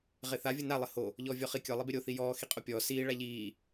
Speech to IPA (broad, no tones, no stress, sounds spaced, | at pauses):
ʁ e θ a vʲ o n a lˠ ɘ h o | ʎ ɔː vʲ ɔ χ i kʲ ɔ lˠ i b e ɾʲ o θ i j ɔː x i qʼ o pʲ ɔː s iː ɭ a ʎ iː